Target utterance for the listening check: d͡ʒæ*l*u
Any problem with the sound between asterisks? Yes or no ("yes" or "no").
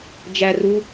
yes